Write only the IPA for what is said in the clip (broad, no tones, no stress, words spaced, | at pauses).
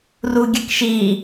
ruɡʲəkʃi